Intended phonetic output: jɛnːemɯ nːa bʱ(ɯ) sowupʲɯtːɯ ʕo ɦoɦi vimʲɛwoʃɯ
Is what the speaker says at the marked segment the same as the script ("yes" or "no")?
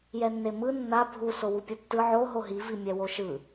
no